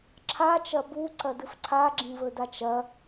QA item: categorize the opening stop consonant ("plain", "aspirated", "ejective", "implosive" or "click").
click